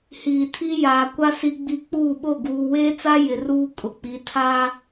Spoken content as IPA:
h iː˨ tʰ i˦ j aː˨ kʷ a˦ s i˦ ɡ͡b i˦ k͡p uː˦˨ ɓ o˦˨ ɡ uː˨ w eː˦ t͡s a˦ j ɪ˨ r uː˦ kʼ ʊ˨ k͡p i˨˦ tʰ a˦

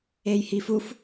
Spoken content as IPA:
e j h i f u f

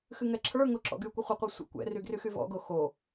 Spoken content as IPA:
x ɨ ŋ ɛ ǁʰ ə˞ ŋ o ǁ ɔ̰ ɡ y kʷ ɪ χʷ ɪ qʷ ɛ sʷ ə̰ kʷ ɛ̰ r y ɡ r y x y v ɔ̰ ɡ o x o

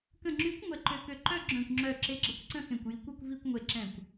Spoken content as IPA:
k ə̃˧˩ ŋ͡ǁ y˨˥ kʷ ŋʷ ɛ˧˩ ǃ ø˧˩ k ø˧˩ ǃ œ˥˧ ɡ͡ǁ œ̃˧˩ kʷ ŋ͡ǁ œ˧˩ ǁ e˨˥ ɡ͡ǁ ə˨˥ kʷ ǀ ə̃˥˧ x ẽ˧˩ kʷ j i˨˥ kʷ ø˥˧ kʷ v i˥˧ kʷ ŋʷ e˧˩ ǁ ɛ̃˧˩ kʷ

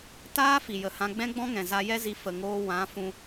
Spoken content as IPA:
t aː˦ f i˨ j ə˨ h ã˧ ɡ͡b ɛ̃˦ ɡ͡b ɔ̃˦ ŋ ɛ̃˨ z a˧ j ɛ˦ z i˧ f ə˨ ŋ oː˧ w ã˨˦ f ũ˧

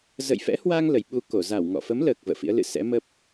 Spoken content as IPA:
z ə̰˧˨ j f ɛ̰˧˥ h w a˧ ŋ l ə˨˩ j ɓ u˧ k o˧˩ z a˧˩ w ŋ ɔ̰˧˨ f ə˨˦ m l əː˨˩ k̚ v ə̰ː˧˨ f ḭ˧˥ ə̯ l ɨ̰˧˨ s ɛ̰˧˥ m ə˦˥ p̚

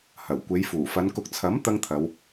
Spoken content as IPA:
h ɐ˨˩ w kʷ e˨˧ j f uː˨˩ f ɐ˨˧ n k ʊ˨ k̚ t͡sʰ ɐ˨˥ m t̪ ɐ˥ ŋ t̪ʰ ɐ˨˧ w

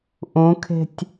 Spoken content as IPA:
ʔ ũ kʰ e̤ tʲ

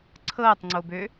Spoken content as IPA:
ǀʰ ɤː tˤ ŋ͡ǀ o b ø

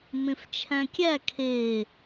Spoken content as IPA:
m ẽ f t͡ʃʰ æ̃ kʲ æ kʰ e

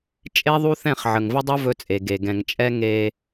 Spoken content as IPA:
t͡ʃʼ e˦ ðˤ u˦ θ ɛ̃˦˨ χ ʕ ə˨ ŋ v ə˦ dˤ u˦ v ɵ˦ t͡sʼ e˨ ɡ e˨ ɡ ɛ̃˨ ŋ t͡ʃʼ ɛ˦ ŋ e˦

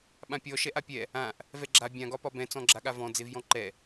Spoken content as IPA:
ɓ ã pʲ ɔ ʃ ɛ ʔ a pʲ ɛ | ã ʔ | v ɛ ɡ͡ǁ a bʲ ã ɡ ɒ p ɒ b ɛ̃ t͡s ɔ̃ ɡ͡ǁ a ɠ a v ɔ̃ d͡z e v j ɔ̃ ǃ ɛ

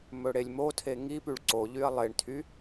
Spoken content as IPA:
m ɵ ɽ e lʲ m o tʰ e ŋ i p y ɭ ǀ o ʎ y ɐ̯ lˠ e ɳ tʰ y

